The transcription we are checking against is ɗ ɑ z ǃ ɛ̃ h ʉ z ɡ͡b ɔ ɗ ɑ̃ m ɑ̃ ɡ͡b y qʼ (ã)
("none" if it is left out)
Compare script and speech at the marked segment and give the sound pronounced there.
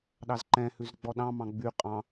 ɑ̃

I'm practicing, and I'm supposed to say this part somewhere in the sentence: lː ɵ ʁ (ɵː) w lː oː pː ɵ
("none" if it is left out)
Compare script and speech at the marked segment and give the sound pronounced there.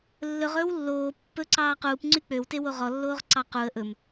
ɵː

